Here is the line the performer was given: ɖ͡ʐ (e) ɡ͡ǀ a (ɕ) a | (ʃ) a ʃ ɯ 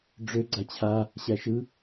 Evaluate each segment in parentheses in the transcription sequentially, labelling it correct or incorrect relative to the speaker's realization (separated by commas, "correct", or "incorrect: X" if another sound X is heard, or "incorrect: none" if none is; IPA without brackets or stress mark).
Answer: incorrect: ø, incorrect: t͡ɕʰ, incorrect: ɕ